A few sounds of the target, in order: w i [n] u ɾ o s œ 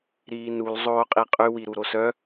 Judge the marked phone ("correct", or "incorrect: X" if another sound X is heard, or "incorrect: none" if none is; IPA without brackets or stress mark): incorrect: ɾ